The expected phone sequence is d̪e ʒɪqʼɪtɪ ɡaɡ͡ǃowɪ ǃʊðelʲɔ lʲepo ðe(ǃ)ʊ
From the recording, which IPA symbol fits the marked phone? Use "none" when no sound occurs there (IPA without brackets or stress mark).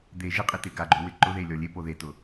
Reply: t